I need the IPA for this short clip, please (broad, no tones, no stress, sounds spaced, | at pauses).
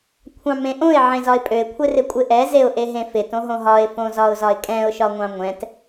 kʷʰ ɑ̃ m ẽ ʔ õ ɪ̯ ʕ ẽ z ɒ ɪ̯ pʼ ø ɪ̯ kʷʰ ɪ r ɪ kʷʼ ɪ ʔ ɛ z e ʊ̯ ʔ e ɦ ẽ f ɪ t õ ɦ õ ɦ ɒ ɪ̯ f õ z ɒ ʊ̯ z ɒ ɪ̯ kʼ ɛ̃ ʊ̯ ʃ ɒ ŋʷ ɑ̃ ŋʷ ɛ̃ t